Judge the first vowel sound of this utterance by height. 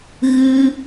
high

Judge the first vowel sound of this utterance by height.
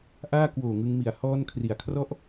low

